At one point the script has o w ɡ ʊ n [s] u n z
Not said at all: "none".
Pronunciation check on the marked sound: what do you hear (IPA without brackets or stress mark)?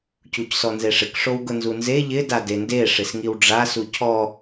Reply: z